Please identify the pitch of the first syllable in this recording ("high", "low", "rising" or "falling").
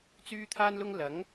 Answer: high